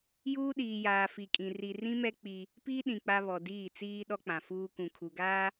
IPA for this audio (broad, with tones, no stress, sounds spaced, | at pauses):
j uː˦ ɗ iː˨ j aː˨ f i˨ kʼ ĩ˨ r i˨ r ĩ˦ m ɛ˦ k͡p i˦ | p iː˦ ɗ ĩ˨ k͡p a˦ β ɔ˨ d iː˦˨ t͡s iː˦ ɗ ɔ˦ k͡p ã˨ f uː˦ k ũ˨ kʰ u˨ ɡ aː˦